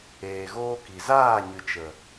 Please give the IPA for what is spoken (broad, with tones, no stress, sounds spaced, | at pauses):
eː˨ ɣ oː˧ k i˨ z aː˦˨ ɲ ɨ˨ t͡ʃ ə˨